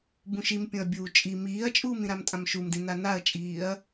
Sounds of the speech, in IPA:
bũʃimpʲõɐ̯bʲuː t͡ʃʼi miːɐ̯t͡ʃʼuːmĩɾam tʼãmʃumdĩna naɐ̯t͡ʃʼiːɐ̯

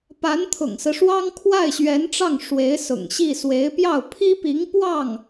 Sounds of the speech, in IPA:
pa˧˥nt̪ʰʊ̰˨˩ŋsɹ̩˦ʂwɑ˥ŋ kʰwa˥˩ɪ̯ɕɥɛ˧˥nʈ͡ʂɑ˥˩ŋ ʂwe˧˥ɪ̯sʊ̰˨˩ŋɕi˥˩ swe˧˥ɪ̯pjɑ˥˩ʊ̯ pʰi˥pi˧˥ŋ pwɑ˥˩ŋ

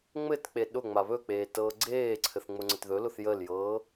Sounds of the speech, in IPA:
ŋ͡mɘtk͡pe ɗʊ ŋ͡maβɵk͡peː tɤːɡ͡ǀeːǀʰɘθ ŋ͡mʊŋ͡ǀətðɵlʊθ jəljɤː

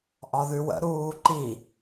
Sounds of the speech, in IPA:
ʔɒðʉwə̰ ɾuːǃi

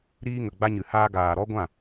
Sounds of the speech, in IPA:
ɾiː˧ ŋə˨ɡ͡ba˧ɲɨ˨haː˧ ɡaː˨ɾɔ˦ɡʷã˦˨

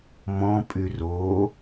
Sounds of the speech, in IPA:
mɔ̃pʼy ro

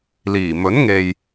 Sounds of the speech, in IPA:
liː˨˩mɵ˨˥nŋe˨j

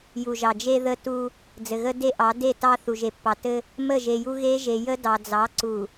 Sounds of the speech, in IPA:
ju˨ʒɑ˨d͡ʒe˦ ðə˦tu˦ | d͡zɘ˨ɣə˦ de˦ʔɑ˨˦de˦˨ tɑ˦θu˨ʒe˨pːɑ˨ tɘ˦ | mə˦˨ʒe˨ ju˦ ɣe˦ ʒe˨jə˦ dɑ˨ d͡zɑ˨˦ǀu˨

